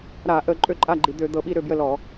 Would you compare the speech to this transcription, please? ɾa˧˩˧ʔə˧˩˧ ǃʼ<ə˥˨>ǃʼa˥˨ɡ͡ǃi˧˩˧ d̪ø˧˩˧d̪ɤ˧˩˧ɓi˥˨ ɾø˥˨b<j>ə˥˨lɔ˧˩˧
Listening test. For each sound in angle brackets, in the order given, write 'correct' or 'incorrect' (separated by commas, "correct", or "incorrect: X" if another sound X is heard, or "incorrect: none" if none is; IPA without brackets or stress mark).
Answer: incorrect: ø˥˨, correct